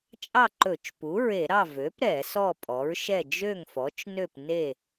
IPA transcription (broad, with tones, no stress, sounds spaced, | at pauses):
t͡ʃʼ ɑ˥˨ ǃ ɵ˧˩˧ t͡ʃ p u˩˥ ɹ e˧˩˧ ɾ ɑ˥˨ v ø˩˥ p ɾ ɛ˧˩˧ s ɔ˥˨ pʼ ɔ˩˥ ɹ ʃ ɛ˥˨ d͡ʒ ø˥˨ ŋ f ɔ˩˥ t͡ʃ n ø˥˨ p n e˥˨